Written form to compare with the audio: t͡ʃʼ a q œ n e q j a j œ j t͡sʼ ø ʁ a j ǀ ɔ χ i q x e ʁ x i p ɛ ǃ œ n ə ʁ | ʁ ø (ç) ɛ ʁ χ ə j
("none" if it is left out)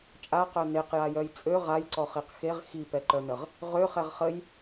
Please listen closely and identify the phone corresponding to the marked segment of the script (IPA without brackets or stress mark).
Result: χ